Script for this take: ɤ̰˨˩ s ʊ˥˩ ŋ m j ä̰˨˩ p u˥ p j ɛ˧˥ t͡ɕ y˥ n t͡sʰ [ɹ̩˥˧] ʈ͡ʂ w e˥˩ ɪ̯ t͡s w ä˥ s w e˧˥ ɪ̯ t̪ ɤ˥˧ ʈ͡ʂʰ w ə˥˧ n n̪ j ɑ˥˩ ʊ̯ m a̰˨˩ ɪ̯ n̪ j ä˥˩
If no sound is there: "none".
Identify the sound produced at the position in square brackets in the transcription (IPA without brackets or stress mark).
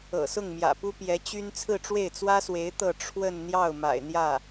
ɹ̩˥˧